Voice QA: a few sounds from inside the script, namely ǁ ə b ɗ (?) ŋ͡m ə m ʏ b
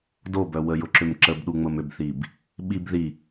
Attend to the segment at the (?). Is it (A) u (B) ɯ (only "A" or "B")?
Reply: A